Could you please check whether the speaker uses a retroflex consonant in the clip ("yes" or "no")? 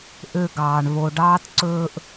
yes